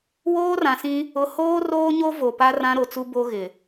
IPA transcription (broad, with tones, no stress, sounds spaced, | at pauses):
w oː˦ r ã˨ s ĩ˦ | ʊ˦ h oː˦ r oː˦ ɲ o˦ v o˨ p a˦ r ã˦ ɾ o˨ t͡s u˦ b o˦ ɣ ɪ˨